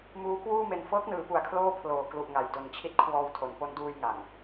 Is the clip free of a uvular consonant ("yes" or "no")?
yes